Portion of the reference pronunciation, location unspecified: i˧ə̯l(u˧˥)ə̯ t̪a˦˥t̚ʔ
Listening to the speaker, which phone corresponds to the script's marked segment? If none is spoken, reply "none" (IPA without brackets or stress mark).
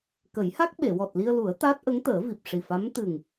u˨˩˦